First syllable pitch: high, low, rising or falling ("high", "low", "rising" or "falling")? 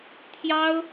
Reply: high